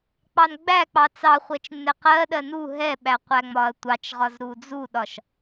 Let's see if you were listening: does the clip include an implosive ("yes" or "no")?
yes